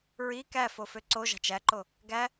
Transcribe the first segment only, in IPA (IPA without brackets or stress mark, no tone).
ɹ